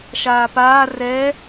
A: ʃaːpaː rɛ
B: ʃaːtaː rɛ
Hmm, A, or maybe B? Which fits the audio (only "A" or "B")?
A